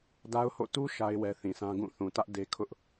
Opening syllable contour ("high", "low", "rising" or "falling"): high